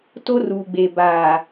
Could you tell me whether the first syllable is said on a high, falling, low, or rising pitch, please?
high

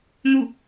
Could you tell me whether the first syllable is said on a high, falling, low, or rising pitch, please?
falling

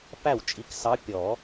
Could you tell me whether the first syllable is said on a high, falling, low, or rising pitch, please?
falling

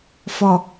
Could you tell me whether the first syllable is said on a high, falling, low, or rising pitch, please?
low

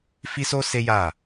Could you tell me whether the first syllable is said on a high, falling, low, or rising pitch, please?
high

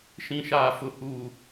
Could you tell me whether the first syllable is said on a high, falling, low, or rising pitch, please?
low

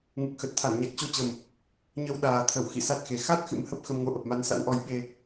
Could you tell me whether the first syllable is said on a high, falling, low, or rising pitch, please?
low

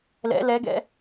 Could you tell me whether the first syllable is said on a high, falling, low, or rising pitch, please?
rising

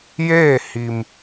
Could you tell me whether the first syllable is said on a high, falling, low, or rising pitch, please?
falling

